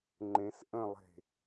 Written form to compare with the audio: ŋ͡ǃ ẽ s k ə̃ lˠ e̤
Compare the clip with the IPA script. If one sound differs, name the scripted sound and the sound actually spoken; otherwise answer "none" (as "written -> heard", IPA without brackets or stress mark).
k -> ʔ